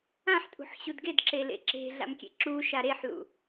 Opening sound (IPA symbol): ã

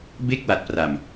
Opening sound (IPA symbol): b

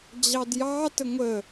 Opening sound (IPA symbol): d͡ʑ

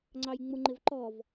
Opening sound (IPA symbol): ŋ͡ǀ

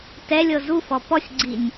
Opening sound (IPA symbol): t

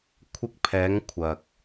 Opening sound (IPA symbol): kʷʰ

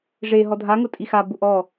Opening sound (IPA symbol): ʐ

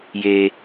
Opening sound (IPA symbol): j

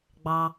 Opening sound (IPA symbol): ɡ͡b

